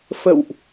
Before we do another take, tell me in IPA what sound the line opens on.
f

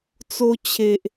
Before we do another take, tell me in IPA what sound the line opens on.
t͡s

